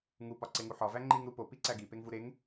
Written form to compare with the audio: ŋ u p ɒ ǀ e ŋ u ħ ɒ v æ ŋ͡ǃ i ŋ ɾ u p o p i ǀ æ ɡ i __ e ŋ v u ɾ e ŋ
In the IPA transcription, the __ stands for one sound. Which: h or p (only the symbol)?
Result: p